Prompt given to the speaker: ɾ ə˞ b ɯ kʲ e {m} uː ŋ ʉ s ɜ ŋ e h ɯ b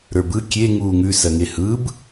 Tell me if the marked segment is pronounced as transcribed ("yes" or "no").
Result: no